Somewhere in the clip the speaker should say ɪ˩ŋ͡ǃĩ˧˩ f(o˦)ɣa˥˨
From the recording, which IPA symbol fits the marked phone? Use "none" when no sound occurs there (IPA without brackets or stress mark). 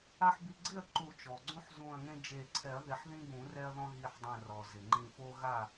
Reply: o˦